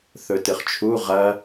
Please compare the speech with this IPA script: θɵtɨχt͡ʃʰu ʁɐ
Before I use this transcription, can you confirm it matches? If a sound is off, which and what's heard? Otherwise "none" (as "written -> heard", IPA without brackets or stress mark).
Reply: none